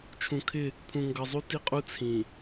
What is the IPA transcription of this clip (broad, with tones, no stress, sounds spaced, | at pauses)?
t͡ʃʰ ũ˨ kʰ ɪ˦˨ | pʰ ũ˨ ŋ ɡ ʌ˨ zˤ u˦ t i˦ qʼ u˦ t͡sʰ ĩ˨